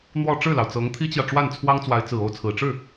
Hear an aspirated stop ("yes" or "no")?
yes